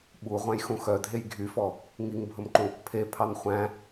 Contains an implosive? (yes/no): yes